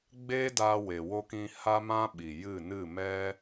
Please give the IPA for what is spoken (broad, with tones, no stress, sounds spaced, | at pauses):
ɡ͡b e˦ d aː˧ w e˨ w o˧ k ĩ˧ h a˦ m ã˦ ɓ i˨ j ɨ˦˨ n ɨ˦˨ m ɛ˦